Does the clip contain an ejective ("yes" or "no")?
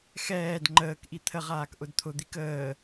no